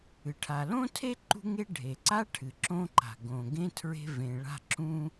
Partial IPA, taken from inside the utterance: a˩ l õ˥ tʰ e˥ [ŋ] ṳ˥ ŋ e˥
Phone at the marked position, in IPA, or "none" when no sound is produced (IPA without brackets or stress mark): ǃ